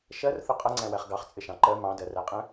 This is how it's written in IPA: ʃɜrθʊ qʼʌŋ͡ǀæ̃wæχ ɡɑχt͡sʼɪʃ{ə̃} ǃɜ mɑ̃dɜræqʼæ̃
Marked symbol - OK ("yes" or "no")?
no